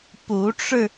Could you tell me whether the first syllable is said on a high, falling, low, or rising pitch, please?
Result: rising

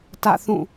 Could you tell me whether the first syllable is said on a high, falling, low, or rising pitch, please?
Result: falling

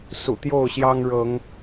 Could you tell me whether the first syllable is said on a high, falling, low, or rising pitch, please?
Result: low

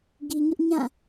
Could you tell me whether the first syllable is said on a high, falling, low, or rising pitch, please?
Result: low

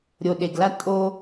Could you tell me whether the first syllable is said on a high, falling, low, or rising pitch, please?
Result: low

